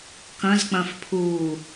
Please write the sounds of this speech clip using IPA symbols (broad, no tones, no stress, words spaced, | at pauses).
kɐ̃zk͡pɐ̃fpʰuː